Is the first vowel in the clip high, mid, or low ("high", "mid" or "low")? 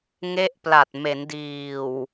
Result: mid